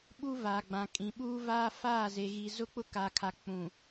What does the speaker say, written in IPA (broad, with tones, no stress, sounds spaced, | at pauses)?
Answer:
ɓ u˦ v a˨ ɡ͡b ã˨ kʼ ĩ˨ ɓ uː˦ v aː˦ f aː˦˨ z e˨ ɣ i˨ z ʊ˦ k͡p ʊ˦ k a˨ kʰ a˨ k͡p ũ˨